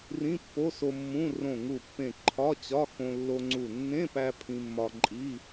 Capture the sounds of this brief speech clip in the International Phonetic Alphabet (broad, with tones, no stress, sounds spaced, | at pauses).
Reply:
r ĩ˧˥˧ pː o˧˥˧ s o˧ mː ũ˧˥˧ r õ˧˩ ŋ u˧˩ pː ẽ˧˩ ǃʰ ɒ˧˥˧ t͡ɕ ɒ˧˥˧ x õ˧ lː o˧ ŋ͡ǀ u˧˩ nː ẽ˧˥˧ p æ˧ pʰ ĩ˧ mː ɒ˧ ǃʼ i˧˥˧